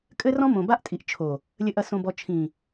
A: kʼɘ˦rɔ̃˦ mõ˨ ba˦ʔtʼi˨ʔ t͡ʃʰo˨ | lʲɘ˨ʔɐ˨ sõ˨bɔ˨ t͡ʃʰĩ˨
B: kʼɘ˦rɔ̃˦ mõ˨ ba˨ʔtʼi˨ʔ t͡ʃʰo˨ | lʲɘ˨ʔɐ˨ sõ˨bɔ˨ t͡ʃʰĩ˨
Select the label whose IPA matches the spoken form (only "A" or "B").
A